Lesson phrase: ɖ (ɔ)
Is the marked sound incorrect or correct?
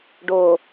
incorrect